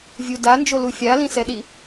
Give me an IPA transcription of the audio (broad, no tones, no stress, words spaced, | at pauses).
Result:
vʲudand͡ʒolu fʲalĩsɛɗi